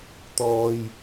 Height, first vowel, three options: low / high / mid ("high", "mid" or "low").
mid